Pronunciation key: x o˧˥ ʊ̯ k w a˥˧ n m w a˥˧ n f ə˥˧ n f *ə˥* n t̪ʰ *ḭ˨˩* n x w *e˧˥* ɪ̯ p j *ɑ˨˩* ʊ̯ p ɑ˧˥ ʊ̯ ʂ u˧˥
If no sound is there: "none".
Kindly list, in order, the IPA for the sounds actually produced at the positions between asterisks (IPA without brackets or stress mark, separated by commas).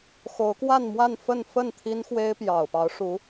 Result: ə˥˩, i˥, e˥, ɑ˨˩